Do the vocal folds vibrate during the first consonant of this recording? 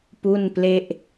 no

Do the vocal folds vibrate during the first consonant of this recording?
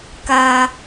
no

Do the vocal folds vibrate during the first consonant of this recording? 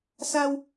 no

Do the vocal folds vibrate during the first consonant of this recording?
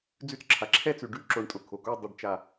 yes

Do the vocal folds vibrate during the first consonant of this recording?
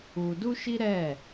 yes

